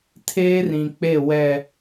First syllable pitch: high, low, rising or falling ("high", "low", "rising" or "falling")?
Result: high